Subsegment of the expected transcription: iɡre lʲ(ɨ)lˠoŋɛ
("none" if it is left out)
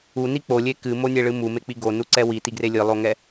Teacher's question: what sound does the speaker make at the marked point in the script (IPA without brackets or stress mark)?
ɨ